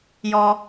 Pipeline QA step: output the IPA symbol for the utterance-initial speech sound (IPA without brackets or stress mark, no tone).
j